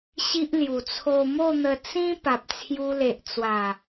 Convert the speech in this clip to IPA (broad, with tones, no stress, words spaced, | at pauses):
ɕi˦ʔlju˨˩ t͡sʰo˧mo˥˧n̪ə˧ t͡sĩ˦ pa˨p̚t͡sʰju˧le˨ʔt͡swa˨˩